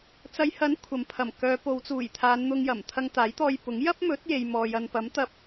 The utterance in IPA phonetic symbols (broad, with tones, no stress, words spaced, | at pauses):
t͡sɐ˨˧jhɐ˨˥n kʷʰɐ˨mpʰɐ˨˩mkœː˨˧ po˨˧wt͡suː˨˩jt̪ʰaː˨˧n n̪ʊ˧ŋjɐ˨˩m t̪ʰɐ˧ŋt̪aː˨˥jt̪ɔː˧jpʊ˨˥ŋ jɐ˥p̚mɵ˨˥t̚ je˨jmɔː˨jɐ˨n pɐ˨˥mt̪ɐ˧p̚